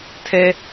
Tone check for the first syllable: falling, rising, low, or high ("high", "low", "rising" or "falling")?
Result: high